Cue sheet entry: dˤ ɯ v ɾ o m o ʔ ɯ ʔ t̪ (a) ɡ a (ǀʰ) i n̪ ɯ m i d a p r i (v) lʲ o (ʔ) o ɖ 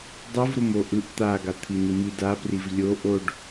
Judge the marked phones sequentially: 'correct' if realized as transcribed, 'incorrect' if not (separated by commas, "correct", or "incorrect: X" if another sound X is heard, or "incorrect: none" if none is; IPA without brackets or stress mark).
correct, incorrect: t̪ʰ, correct, correct